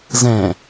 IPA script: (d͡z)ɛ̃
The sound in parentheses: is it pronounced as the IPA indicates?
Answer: no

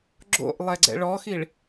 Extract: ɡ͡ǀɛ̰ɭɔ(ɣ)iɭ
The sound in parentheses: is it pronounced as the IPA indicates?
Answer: no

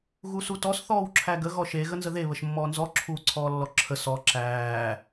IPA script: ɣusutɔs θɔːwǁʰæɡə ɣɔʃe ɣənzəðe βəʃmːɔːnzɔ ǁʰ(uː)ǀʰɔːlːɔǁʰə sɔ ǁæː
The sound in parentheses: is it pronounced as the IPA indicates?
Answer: yes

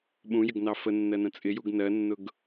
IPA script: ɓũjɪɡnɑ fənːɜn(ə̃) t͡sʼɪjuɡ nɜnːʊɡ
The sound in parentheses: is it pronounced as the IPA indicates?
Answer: yes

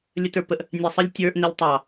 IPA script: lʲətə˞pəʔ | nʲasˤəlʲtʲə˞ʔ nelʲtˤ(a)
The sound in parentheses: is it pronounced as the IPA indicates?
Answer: no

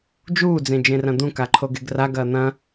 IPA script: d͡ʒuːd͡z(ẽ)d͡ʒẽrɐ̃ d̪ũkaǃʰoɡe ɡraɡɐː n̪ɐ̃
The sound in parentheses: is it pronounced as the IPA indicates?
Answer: yes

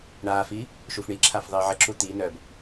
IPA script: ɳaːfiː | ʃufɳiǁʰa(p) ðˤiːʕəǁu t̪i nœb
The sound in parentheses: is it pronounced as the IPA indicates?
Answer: no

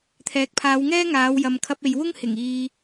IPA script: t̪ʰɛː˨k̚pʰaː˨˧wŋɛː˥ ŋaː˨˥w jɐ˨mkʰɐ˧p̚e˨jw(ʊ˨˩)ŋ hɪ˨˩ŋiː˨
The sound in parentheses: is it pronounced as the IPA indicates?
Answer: no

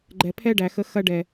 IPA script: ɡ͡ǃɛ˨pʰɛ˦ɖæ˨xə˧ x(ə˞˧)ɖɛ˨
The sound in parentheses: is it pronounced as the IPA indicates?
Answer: no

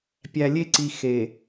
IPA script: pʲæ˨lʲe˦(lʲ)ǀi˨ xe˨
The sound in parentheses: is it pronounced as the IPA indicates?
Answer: no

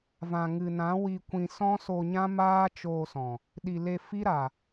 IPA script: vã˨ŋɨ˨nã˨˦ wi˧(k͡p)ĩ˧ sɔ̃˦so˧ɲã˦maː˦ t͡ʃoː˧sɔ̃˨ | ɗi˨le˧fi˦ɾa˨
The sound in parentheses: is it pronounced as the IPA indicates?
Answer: no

